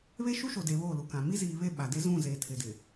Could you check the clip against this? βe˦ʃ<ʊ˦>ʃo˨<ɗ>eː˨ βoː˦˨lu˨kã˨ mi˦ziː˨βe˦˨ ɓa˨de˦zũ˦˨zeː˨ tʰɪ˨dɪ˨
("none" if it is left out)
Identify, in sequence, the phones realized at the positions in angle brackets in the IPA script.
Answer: u˦, d

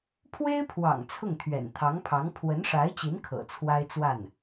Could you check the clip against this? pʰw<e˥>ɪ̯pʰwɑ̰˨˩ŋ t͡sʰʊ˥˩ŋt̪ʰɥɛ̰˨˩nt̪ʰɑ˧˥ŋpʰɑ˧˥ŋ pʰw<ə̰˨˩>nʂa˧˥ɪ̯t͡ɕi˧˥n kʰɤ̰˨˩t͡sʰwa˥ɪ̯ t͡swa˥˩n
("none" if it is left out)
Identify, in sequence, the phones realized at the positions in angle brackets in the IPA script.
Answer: e˥, ə˧˥

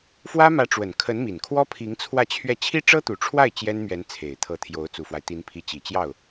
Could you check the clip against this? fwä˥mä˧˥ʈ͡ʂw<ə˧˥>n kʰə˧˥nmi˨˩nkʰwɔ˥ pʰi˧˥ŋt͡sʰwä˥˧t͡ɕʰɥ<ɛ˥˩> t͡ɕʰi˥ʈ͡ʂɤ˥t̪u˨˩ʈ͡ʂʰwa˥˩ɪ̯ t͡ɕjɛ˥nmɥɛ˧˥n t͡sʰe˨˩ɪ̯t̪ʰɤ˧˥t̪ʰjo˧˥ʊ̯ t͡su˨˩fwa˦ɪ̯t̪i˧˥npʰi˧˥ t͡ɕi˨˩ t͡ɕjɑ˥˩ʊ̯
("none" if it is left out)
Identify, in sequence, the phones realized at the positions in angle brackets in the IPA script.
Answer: ə˨˩, ɛ˥˩

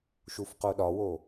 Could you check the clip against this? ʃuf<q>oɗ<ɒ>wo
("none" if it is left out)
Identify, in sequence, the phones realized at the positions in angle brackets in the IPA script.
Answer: q, ɒ

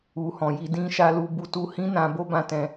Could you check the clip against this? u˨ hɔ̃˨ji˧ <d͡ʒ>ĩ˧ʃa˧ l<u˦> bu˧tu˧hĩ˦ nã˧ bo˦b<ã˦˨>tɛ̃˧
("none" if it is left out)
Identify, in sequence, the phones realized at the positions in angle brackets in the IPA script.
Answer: d, u˧, ã˦˨

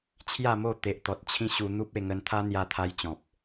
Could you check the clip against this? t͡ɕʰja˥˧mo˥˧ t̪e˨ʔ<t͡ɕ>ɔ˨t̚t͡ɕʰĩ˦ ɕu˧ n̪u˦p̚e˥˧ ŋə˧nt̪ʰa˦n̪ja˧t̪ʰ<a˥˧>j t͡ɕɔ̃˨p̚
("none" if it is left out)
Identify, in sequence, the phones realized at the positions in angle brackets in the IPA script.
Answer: t̪, a˧

